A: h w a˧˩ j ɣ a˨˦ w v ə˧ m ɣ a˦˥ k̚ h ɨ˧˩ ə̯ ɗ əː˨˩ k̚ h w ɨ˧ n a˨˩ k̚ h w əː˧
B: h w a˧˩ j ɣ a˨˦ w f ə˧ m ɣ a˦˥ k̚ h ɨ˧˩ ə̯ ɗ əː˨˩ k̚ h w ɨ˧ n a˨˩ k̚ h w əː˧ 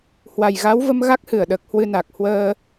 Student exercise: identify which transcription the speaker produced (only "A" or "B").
A